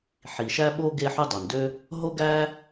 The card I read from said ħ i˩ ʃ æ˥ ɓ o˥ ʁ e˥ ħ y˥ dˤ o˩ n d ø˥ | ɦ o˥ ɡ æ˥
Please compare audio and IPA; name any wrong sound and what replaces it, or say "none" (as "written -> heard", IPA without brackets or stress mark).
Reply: ʁ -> ɡ